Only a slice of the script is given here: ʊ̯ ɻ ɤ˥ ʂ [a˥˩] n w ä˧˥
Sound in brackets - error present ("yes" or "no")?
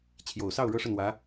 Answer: yes